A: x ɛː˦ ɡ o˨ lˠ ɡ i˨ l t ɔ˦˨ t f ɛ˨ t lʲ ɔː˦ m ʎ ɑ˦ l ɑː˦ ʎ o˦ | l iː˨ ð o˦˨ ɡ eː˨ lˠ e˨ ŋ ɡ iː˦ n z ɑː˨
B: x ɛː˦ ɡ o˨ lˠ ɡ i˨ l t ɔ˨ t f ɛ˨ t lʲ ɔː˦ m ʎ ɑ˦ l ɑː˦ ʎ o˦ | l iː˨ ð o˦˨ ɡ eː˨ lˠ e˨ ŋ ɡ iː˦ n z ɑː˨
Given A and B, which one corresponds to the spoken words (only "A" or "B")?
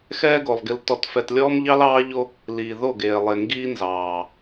B